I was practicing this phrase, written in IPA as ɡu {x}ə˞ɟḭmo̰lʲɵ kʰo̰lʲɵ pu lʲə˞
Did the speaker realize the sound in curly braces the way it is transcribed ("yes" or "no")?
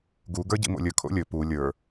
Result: no